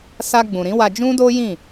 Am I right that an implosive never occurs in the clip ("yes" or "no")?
yes